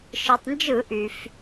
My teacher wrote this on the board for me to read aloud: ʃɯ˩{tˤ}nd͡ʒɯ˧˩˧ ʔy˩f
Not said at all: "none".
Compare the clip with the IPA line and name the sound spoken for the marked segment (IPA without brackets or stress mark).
tˤ